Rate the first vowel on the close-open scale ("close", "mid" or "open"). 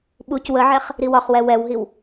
close